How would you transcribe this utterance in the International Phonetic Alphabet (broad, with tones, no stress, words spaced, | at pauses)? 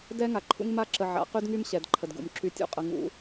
dɛ˦ŋa˨ǃʰṵ˦ŋ ma˦ǁə˨ ʕa̰˨˦qy˦dŋy˦m ɕɛ˨dǃʰə˨dɡṵ˨mǁy˦ tʲṵ˦qʼə˨ ŋṵ˨˦